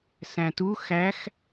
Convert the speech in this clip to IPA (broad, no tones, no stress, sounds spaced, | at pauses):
s æ̃ t u x æ x